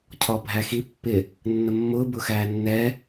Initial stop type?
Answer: aspirated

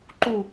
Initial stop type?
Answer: click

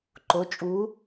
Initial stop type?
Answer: click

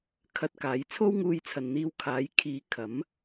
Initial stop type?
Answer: aspirated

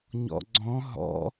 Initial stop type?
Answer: click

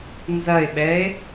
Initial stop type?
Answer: implosive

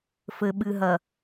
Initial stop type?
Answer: implosive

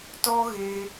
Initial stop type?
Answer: plain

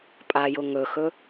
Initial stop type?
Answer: ejective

